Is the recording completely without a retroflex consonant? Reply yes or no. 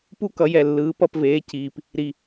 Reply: yes